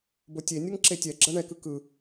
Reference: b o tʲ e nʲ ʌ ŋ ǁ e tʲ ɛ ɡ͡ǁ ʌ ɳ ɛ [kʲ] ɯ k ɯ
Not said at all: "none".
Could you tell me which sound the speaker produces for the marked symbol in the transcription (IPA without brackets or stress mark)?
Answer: k